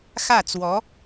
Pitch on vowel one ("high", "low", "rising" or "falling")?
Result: falling